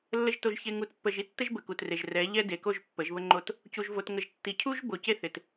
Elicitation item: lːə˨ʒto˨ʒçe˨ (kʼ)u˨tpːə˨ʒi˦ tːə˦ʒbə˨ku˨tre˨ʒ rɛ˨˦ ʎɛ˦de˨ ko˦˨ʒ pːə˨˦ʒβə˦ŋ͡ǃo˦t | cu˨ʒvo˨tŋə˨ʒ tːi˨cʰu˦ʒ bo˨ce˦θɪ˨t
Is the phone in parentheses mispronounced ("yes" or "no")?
yes